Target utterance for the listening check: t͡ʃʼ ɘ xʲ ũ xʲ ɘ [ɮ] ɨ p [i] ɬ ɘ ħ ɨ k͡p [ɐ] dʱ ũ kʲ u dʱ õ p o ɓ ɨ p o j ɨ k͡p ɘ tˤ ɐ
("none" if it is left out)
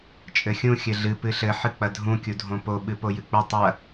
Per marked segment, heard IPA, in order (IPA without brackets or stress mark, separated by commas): ɮ, ɨ, ɐ